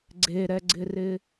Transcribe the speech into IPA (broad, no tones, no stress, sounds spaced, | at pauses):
ɡ͡ǀ e ɾ ɛ ɡ͡ǀ ɪ r ɪ